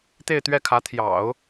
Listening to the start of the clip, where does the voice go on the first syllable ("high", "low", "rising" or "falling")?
falling